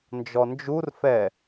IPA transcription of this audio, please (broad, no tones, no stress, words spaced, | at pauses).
nd͡ʒɔnd͡ʒurfɛ